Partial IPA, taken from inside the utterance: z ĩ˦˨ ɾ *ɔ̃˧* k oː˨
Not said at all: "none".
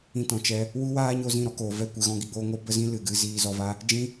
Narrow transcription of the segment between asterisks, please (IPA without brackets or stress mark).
ɔ˧